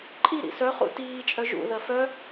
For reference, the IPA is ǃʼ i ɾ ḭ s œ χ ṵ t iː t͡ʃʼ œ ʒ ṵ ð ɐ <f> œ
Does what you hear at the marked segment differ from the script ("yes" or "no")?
no